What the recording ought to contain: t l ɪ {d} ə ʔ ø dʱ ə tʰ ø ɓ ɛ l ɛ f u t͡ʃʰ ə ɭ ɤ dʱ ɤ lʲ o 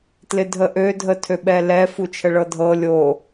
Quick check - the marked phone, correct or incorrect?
incorrect